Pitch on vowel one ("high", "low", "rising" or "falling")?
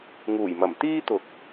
low